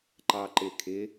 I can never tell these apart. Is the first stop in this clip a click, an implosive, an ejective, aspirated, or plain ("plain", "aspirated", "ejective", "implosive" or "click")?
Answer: click